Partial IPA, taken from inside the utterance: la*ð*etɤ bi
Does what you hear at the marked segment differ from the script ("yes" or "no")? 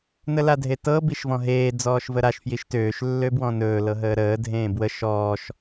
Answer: yes